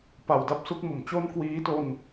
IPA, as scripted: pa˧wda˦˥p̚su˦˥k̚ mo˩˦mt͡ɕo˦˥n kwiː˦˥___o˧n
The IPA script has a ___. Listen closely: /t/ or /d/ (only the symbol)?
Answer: t